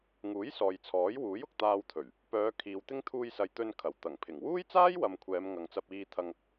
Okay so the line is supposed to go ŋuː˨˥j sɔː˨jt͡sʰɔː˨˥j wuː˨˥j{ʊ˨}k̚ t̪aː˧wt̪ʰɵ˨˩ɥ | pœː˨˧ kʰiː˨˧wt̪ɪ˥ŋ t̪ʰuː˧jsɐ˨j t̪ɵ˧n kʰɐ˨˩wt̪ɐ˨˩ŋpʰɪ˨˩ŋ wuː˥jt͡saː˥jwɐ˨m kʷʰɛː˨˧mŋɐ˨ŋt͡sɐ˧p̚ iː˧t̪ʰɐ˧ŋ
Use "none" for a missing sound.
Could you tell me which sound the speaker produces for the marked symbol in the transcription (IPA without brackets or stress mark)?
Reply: ʊ˨